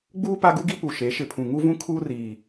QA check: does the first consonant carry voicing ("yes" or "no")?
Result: yes